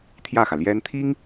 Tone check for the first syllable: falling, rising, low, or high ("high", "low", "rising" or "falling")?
falling